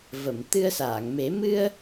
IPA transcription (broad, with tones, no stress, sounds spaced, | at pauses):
v ə˨˩˨ m t̪ ɨ˧ ə̯ s aː˨˩˨ ŋ m e˨˩˦ m ɨ˧ ə̯